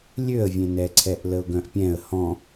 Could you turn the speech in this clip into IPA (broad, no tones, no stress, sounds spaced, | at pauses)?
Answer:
lʲ ø ə̯ vʲ ẽ n ɛ ǀʰ ɛ ʔ l ə ʊ̯ ɡ œ̃ ʔ pʲ ɛ̃ ə̯ h ɔ̃